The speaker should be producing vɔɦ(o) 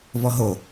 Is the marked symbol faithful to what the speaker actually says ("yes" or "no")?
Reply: yes